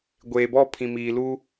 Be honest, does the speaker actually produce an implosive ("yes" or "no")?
no